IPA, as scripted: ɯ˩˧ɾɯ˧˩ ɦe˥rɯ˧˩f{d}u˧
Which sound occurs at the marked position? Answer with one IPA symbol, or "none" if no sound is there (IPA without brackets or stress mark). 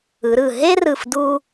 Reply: d